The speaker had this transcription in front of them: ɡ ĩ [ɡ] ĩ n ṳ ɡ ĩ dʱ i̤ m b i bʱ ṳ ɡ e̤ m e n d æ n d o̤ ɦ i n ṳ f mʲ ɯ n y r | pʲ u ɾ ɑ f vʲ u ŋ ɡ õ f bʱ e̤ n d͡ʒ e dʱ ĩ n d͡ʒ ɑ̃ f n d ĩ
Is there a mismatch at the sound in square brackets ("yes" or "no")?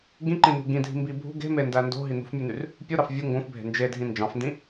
yes